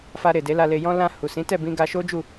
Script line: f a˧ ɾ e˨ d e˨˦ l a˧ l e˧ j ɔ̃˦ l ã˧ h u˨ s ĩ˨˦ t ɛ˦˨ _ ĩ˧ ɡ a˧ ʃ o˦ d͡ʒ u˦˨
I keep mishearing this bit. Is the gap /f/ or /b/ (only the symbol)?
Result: b